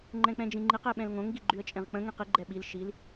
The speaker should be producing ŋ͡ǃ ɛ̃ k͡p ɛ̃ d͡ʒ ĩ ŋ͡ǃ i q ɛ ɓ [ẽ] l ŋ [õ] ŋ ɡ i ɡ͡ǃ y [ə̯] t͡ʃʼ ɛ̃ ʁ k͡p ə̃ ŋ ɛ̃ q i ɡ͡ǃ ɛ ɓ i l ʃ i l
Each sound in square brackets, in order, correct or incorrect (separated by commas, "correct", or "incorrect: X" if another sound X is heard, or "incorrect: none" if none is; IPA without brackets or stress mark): incorrect: ɛ̃, correct, correct